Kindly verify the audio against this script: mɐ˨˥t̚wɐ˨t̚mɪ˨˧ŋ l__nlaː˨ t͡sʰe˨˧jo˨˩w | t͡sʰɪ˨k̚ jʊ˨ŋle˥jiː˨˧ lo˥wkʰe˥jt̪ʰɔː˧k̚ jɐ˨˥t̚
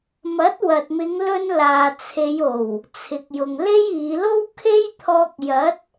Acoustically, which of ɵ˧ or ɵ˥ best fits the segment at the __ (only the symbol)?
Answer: ɵ˧